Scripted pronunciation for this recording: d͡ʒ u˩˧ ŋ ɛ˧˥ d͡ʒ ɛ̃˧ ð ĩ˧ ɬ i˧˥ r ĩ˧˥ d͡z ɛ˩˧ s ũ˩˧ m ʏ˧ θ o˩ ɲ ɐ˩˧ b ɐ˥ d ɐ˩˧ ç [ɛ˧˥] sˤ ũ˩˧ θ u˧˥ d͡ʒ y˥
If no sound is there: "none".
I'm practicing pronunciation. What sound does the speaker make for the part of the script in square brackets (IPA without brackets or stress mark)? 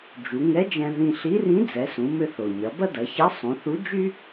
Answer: ɛ˧˥